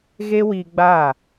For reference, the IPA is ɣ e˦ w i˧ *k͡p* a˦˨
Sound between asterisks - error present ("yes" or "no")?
yes